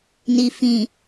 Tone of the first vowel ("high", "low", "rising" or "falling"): low